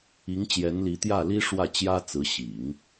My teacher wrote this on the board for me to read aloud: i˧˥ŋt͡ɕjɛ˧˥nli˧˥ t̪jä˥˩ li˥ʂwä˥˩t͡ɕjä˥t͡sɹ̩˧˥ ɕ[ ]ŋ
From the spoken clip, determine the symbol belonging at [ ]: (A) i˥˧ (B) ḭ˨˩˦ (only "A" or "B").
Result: B